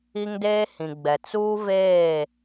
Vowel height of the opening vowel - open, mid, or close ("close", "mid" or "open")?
close